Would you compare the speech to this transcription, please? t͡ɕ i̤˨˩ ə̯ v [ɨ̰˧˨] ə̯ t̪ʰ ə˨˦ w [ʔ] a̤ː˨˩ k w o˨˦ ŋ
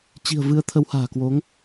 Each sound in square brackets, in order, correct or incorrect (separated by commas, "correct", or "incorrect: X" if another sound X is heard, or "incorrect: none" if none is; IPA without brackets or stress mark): incorrect: ɨ˨˦, incorrect: h